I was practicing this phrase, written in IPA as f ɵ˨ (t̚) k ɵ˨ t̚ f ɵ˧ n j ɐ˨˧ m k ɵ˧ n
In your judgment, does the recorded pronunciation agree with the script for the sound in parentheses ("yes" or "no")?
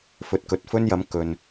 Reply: yes